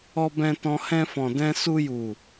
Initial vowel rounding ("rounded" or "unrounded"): rounded